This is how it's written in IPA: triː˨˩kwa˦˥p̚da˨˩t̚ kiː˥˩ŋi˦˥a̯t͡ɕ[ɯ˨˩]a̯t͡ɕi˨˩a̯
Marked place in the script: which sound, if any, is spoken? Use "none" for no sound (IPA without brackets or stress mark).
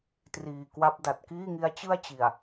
ɯ˥˩